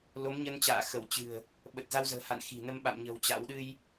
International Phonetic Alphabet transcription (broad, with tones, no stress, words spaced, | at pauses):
lo˨˦mɲə˧nt͡ɕa̰ː˧˨ xə˧˩wt͡ɕɨ̤˨˩ə̯ | ɓə˨˩t̚za˧wzə̤ː˨˩ha̰˧˨n xi̤˨˩nə˧m ɓa̰˧˨mɲə̤˨˩w t͡ɕa̰˧˥w ɗɨ˧j